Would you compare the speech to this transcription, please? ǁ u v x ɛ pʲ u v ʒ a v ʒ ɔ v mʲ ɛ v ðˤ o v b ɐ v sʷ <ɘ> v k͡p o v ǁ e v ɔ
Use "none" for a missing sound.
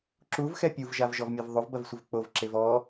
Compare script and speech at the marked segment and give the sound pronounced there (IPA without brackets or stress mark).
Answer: ɘ